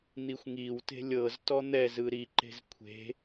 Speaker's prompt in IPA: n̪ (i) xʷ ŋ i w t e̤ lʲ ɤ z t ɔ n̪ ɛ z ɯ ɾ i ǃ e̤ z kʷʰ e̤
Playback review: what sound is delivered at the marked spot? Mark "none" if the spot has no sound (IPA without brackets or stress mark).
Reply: i